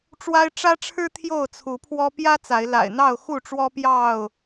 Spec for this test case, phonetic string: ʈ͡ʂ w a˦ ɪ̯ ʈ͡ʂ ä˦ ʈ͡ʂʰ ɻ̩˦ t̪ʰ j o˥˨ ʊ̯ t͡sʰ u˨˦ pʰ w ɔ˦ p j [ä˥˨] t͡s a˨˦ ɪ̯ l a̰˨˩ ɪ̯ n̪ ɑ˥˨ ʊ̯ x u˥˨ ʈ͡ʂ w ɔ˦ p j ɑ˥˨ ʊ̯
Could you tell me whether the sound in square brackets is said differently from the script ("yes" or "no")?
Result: yes